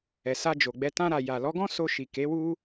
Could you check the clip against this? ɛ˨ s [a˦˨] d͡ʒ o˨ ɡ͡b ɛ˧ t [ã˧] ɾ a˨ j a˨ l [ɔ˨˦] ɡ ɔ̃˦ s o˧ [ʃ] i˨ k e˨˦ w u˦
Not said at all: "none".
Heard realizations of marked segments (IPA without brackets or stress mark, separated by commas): a˧, ã˧, ɔ˨˦, ʃ